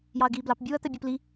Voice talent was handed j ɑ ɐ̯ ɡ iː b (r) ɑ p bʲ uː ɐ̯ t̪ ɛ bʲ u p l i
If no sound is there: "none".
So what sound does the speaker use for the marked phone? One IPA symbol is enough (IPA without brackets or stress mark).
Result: l